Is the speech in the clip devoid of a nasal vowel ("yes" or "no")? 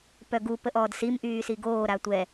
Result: yes